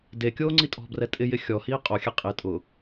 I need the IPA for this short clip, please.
de kʲoːŋ͡ǀitʼɔ̤brɛ tʼɪjɪ xʲɔhiː qʼoxʲɛ qʼe tʼʊ

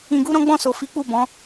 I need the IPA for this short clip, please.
ĩ˧ɡu˦ ɾɔ̃˦ɡ͡bɔ̃˦˨so˨ fi˨˦k͡pu˦˨bɔ̃˨˦

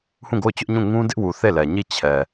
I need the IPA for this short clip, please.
hũ˦˨ɡo˦˨ʊ̯t͡ɕʊ˦ʔɲũ˦˨ ŋũ˦dɪ˦ʔwu˨ θe˦˨lɛ˨ɲi˦˨ t͡ɕʰɛ˨

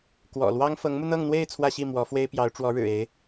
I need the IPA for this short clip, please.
kwɔ̰˨˩lwɑ˥ŋ fɤ˧˥ŋmu˧n̪ɤ˥˧ŋ n̪we˥˧ɪ̯ t͡sʰwä˥˧ɕi˥˩ mwɔ˧˥fwe˥ɪ̯pjɑ˧˥ʊ̯ ʈ͡ʂwɔ˧˥ɻɻ̩˨˩ e˧˥ɪ̯

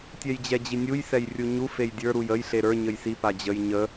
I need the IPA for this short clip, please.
tʲɛjd͡ʑɛd͡ʑinʲuj sɛjrʲuɲu fejdʲə˞ ɾujəj ɬeɾə˞ ɲəjsi pad͡ʑəj ɲə

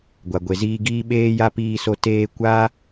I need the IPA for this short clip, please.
ɡʷa˨ɡʷe˨ziː˧ɡiː˦ ɓeː˦ja˦piː˧so˧ teː˧kʷa˦

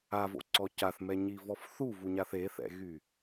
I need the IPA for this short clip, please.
avo̰ǀɔ caθmɛɲivɔf θuvuɲaθ eθɛ̰ɣy

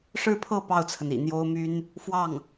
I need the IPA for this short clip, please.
ʂɻ̩˥˧pʰɤ˥˧ pɑ˥˩ʊ̯t͡sʰə˩n ḭ˨˩n̪jo˥ʊ̯ my˥n | fwɑ˥˩ŋ

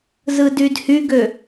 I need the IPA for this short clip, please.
zɯdydhyɡø

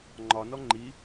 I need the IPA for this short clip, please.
ŋ͡ǃɒnɔ ŋ͡ǃi

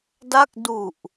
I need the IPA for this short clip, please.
da˥˩k̚ du˨˩ʔ

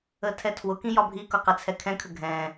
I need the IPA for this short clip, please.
ətʰɛtʰwʊkĩ jɒbʱikʊ qɪt͡sʰɛkʰɛ̃kʰə ɡʱɛ̃

